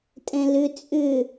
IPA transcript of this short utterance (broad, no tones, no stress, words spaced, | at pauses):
tʼɛ̃lʏ t͡sʼʏ